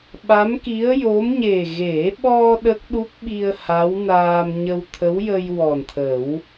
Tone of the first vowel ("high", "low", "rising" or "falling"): rising